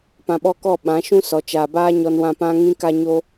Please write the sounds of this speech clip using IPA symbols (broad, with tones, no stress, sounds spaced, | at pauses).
p ã˧ ɓ ɔ˦ k ɔ˦˨ ɓ ã˨˦ ʃ ũ˦ s ɔ˨ t͡ʃ aː˨ b aː˦ ɲ ɔ˧ n w ã˧ p ã˦ ŋ ĩ˦ k a˦ ɲ o˦